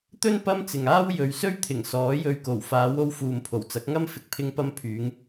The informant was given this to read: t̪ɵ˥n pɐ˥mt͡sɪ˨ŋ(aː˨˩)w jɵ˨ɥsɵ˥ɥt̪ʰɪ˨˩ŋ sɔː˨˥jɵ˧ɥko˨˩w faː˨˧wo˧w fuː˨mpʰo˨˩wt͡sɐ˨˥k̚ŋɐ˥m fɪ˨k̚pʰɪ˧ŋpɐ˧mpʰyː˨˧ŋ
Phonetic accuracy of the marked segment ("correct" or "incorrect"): incorrect